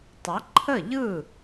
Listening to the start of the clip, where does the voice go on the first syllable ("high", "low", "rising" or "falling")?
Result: rising